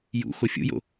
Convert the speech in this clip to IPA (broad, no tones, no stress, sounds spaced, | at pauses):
j ṵ x o fʲ ṵ j o̰